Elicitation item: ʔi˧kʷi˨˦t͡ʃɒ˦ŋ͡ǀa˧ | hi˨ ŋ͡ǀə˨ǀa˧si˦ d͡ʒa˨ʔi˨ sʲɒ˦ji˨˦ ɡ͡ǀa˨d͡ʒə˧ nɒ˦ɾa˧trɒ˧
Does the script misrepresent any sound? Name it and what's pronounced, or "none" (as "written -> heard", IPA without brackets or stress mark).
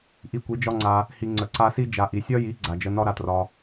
t͡ʃ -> d͡ʒ